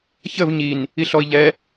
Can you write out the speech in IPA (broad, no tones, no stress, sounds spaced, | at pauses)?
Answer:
ç ə v ɲ i n | i ɬ ɔ i̯ ʎ ɛ